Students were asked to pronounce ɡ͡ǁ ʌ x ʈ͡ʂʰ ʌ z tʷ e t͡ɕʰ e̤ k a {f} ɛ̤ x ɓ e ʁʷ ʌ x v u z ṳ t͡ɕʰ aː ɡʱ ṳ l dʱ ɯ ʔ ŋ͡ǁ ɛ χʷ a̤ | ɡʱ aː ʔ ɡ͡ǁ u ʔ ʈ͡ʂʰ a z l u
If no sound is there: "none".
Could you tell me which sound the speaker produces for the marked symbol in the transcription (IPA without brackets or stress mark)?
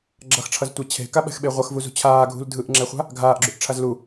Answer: ɓ